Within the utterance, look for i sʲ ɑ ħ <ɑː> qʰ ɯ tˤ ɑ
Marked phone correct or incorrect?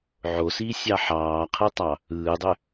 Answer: correct